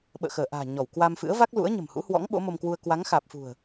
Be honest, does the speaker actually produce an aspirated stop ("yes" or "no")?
no